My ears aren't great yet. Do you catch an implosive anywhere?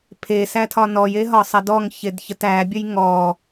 no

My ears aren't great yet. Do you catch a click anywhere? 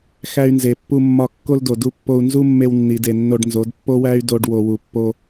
no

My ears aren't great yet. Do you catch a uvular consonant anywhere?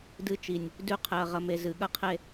yes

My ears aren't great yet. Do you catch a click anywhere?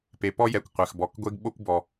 no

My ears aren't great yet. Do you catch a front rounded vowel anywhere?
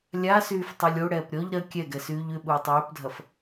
yes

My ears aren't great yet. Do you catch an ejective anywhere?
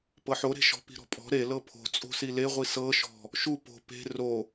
yes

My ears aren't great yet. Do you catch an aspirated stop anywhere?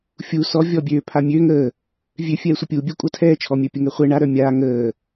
yes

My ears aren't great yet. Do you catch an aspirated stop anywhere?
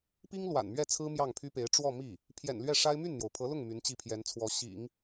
yes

